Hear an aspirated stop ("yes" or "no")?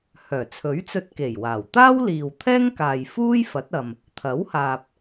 yes